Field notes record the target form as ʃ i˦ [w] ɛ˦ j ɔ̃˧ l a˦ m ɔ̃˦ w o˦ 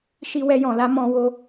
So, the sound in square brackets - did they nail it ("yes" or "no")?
yes